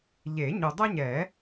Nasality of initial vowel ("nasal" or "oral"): oral